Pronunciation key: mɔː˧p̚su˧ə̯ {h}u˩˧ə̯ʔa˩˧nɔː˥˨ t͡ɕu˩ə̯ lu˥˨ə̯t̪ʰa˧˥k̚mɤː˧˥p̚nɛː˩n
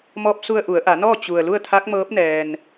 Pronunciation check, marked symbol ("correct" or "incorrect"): incorrect